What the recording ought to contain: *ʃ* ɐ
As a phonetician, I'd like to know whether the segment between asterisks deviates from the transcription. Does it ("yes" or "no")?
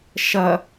no